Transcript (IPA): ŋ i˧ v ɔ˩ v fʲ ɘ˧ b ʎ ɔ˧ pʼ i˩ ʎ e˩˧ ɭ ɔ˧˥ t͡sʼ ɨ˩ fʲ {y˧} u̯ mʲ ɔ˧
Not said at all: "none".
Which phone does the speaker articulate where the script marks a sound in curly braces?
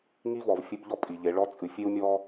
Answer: e˧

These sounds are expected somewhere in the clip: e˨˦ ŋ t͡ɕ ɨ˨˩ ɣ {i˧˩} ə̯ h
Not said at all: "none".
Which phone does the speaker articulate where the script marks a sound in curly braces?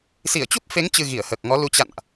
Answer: i˧˩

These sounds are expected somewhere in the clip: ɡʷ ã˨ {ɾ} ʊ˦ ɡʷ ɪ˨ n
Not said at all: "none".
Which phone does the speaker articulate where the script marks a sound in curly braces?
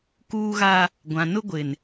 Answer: n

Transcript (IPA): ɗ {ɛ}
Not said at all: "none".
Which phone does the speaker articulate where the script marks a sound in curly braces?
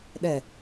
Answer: ɛ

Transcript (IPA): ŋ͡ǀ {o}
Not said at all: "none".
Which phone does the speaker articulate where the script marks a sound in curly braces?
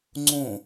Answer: õ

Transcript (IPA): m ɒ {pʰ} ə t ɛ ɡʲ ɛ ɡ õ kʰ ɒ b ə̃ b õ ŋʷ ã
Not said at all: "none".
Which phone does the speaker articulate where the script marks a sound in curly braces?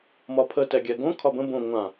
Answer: pʰ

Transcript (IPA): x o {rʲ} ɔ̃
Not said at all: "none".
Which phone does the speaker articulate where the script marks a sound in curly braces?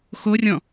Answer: rʲ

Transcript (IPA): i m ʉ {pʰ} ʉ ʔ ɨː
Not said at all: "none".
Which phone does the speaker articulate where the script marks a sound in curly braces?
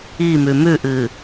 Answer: m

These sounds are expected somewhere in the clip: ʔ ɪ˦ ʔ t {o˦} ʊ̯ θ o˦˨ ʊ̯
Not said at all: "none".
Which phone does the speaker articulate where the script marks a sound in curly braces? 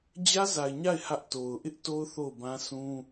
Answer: o˦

